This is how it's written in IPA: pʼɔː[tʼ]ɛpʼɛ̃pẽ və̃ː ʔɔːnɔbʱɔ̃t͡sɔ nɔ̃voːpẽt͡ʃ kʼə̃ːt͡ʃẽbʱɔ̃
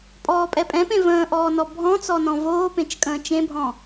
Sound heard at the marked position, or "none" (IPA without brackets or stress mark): pʼ